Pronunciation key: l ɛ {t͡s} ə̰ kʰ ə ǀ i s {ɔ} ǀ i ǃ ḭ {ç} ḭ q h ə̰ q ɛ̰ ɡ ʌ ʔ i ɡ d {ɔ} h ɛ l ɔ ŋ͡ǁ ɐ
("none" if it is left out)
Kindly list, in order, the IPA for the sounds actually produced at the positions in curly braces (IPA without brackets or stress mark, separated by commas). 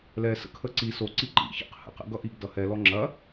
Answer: s, o, ç, ʌ